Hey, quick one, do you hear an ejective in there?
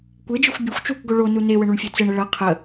no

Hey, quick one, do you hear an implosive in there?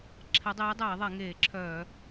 no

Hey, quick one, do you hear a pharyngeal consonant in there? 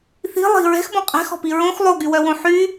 yes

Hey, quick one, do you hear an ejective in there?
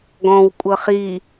yes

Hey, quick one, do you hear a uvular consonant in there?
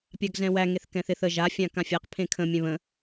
yes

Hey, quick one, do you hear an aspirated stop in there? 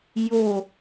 no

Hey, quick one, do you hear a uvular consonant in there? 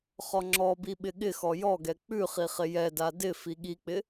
yes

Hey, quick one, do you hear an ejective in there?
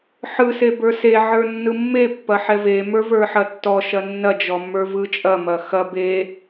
yes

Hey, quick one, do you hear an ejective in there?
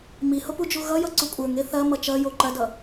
yes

